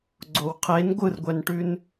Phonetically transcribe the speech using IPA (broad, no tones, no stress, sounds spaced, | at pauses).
ɡ͡ǀ o w qʰ e n ɡʷ ɯ r ɡʷ ɛ n ʈ ʉ n